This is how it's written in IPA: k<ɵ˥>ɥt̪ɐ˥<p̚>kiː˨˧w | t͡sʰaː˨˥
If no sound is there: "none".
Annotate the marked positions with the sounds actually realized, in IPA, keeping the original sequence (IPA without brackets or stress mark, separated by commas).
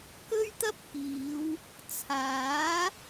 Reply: ɵ˥, p̚